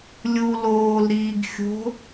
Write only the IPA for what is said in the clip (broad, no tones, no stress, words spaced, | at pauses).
lʲu loːlɾiːɡ xʲo̤